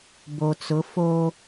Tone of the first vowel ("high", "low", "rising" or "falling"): low